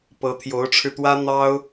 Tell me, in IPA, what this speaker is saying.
p ɤ˧˥ t̪ʰ j o˧˥ ʊ̯ ʈ͡ʂʰ ɻ̩˧ t̪ w ä˥ n̪ ɑ˥ ʊ̯

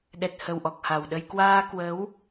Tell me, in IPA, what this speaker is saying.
ɗ ɛ˨˩ t̚ h ə˨˩ w ʔ ɔ˨˩ k̚ h a˨˩ w ɗ ə˧ j k w aː˧ k w ə˨˦ w

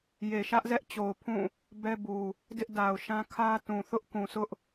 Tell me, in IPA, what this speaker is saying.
j e˨ ʃ ä˦ ʔ z ɛ˦ ʔ t͡ɕ o˨ ʊ̯ pʰ ũ˦˨ | b ɛ˦ b u˨ | d ɪ˦ ʔ d a˨ ʊ̯ ʃ ã˦ kʰ ä˦ t ũ˨ θ ʊ˦ ʔ k ũ˨ s ʊ˦ ʔ

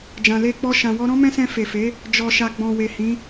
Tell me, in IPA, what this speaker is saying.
d͡ʒ ã˨ l e˧ k͡p ɔ˧ ʃ ã˨ w ɔ˧ ɾ ɔ̃˦ m ɛ̃˦ s ɛ̃˧ f e˨ f e˨˦ | d͡ʒ ɔ˨ ʃ a˨ ɡ͡b ɔ̃˨ w e˨ h ĩ˨˦

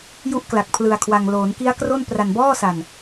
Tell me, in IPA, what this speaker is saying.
j u˦˥ ʔ k l a˨˩ k̚ pʰ l ɯ˧ a̯ kʰ w a˧ ŋ l oː˩˦ n k i˦˥ a̯ k r o˥˩ n p r a˧ n b ɔː˥˩ s a˧ n

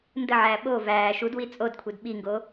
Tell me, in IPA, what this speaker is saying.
n d ə ʕ æː ɓ o v æː ʃ u d w i t͡sʼ o d kʷʰ i d ɓ i ŋ ɡ oː

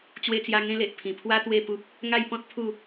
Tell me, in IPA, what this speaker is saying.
t͡ɕ w e˧ t͡s j a˧ ŋ ẽ˦ l e˨ ʔ pʰ ĩ˨˩ pʰ w a˦ t̪ w e˥˧ p u˦ p̚ | ŋ a˥˧ j p ɔ̃˦ t̚ pʰ u˥˧

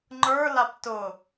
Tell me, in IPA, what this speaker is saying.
ŋ͡ǃ ə˞ l a p t ʊ

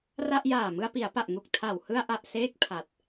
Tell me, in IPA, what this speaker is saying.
r a˥˩ ʔ j aː˨˩ m ɯ˧ a̯ p i˩˦ a̯ p a˨˩ ʔ ŋ u˨˩ k̚ tʰ a˨˩ w h ɯ˧ a̯ ʔ a˨˩ ʔ s eː˥˩ k̚ pʰ a˨˩ t̚

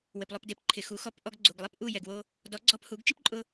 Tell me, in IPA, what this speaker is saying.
w ɪ˩ p lˠ o˥˩ p d e˩˥ p ǃʰ ɪ˩ x u˩˥ x ɔ˧ p ʔ ɔ˧ ɡ ɡ͡ǀ u˩ ɡ lˠ e˥ p ʔ u˥˩ j ɛ˩ ɡ w o˧ | d ɔ˩˥ ɡ͡ǀ ɔ˧ p h u˩˥ ɡ t͡ʃ i˥ p ǃʼ ʊ˧

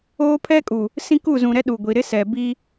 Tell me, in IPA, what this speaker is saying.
oː˦ pʰ ɛ˦ kʼ u˨ | s ĩ˦ k u˦˨ z ũ˨ ɾ ɛ˦ ɗ u˨ ɡʷ i˨ ɾ ɪ˦ s ɛ˨ b i˦

